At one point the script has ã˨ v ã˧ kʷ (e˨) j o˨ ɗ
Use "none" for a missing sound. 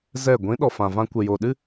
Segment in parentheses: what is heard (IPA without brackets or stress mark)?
e˨